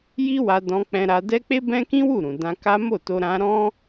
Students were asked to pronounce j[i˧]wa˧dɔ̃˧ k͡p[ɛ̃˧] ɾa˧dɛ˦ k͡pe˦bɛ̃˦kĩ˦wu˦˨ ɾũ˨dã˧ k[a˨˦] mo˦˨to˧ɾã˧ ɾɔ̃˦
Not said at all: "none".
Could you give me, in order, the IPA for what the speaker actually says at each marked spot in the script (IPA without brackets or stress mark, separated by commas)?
i˦, ɛ̃˧, a˦